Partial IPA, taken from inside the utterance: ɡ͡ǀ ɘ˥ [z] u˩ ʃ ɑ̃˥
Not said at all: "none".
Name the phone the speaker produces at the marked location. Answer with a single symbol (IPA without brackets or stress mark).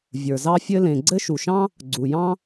ʃ